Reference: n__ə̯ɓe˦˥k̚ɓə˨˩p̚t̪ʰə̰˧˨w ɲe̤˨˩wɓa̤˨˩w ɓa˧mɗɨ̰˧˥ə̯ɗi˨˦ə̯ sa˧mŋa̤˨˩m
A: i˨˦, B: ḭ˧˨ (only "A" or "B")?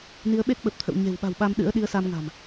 A